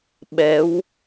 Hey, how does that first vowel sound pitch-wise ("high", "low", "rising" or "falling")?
rising